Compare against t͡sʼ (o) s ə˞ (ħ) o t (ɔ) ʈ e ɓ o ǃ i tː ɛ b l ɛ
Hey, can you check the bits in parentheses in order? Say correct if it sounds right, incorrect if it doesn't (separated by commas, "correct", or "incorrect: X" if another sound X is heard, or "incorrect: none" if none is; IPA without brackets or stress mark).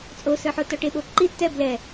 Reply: correct, correct, correct